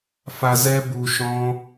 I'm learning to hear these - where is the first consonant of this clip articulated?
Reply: lips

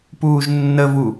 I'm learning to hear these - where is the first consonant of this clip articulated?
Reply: lips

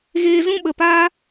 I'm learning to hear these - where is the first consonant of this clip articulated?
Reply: velum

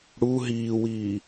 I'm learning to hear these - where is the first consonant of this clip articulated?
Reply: retroflex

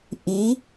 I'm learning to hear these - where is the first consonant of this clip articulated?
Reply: throat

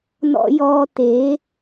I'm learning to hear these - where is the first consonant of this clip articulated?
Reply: tongue tip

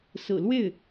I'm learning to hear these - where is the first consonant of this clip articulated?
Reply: tongue tip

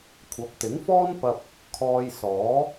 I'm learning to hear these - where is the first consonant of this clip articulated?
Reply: velum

